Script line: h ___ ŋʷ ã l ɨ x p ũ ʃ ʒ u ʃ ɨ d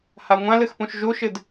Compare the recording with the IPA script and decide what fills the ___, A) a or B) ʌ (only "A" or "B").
A